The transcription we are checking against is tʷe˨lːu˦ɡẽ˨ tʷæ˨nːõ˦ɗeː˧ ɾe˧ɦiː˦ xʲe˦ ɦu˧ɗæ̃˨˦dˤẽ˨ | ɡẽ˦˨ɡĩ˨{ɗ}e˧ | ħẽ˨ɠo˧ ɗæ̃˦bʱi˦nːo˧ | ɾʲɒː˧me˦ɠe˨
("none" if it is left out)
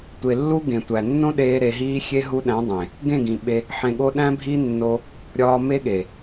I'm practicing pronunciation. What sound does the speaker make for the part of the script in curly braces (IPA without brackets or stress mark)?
ɓ